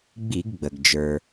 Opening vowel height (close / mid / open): close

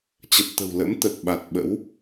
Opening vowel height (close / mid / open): mid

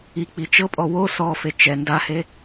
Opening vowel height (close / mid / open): close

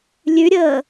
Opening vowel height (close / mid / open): close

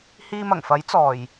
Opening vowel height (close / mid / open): close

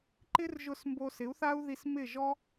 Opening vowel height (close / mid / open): close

